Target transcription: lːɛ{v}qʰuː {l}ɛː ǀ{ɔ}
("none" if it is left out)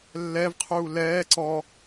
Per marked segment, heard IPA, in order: v, l, ɔ

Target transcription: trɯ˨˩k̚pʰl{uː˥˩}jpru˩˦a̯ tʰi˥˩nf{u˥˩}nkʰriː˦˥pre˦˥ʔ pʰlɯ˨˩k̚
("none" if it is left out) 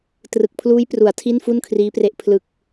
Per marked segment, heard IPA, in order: uː˦˥, u˥˩

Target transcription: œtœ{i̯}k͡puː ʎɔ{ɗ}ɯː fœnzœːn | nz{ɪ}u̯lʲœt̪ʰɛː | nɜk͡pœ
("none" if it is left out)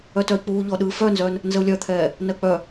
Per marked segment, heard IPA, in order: i̯, ɗ, ə

